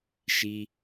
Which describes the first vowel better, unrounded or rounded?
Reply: unrounded